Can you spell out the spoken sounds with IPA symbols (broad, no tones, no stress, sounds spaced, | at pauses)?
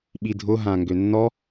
ɓ i dʱ ʊ ɦ ã ŋ ɡ ø nː ɔ